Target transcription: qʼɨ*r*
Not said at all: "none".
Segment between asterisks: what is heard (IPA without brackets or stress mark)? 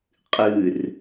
r